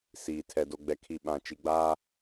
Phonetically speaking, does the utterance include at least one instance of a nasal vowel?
yes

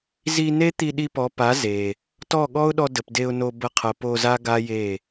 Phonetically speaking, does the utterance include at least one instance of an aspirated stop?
yes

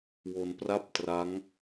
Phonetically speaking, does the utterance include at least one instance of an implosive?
no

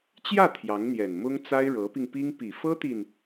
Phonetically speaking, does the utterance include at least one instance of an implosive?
no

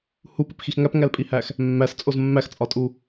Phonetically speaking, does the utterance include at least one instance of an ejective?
yes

